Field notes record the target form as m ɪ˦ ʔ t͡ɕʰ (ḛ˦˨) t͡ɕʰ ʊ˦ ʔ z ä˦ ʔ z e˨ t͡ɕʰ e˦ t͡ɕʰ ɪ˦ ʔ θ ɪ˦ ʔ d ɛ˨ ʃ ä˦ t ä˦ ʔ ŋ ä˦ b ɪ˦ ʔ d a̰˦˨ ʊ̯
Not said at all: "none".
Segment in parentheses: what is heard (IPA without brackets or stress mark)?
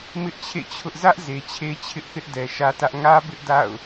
ḛ˦˨